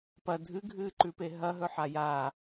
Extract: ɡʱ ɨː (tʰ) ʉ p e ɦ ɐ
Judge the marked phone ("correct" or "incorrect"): incorrect